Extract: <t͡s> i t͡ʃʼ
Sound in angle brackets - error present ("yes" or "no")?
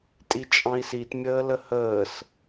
yes